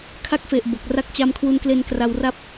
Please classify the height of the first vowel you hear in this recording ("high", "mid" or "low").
low